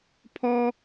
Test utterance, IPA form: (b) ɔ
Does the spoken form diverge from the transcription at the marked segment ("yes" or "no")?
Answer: yes